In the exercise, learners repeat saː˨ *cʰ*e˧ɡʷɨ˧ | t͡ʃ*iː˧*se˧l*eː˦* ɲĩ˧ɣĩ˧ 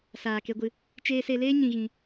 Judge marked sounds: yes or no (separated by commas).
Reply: no, no, yes